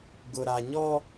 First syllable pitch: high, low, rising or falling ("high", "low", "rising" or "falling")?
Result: low